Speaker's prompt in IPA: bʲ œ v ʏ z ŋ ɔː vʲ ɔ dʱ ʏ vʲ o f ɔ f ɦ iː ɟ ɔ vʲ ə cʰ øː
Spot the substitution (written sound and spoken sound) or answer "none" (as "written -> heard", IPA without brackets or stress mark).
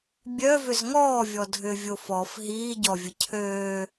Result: none